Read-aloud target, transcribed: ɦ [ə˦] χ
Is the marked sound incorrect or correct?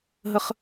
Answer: correct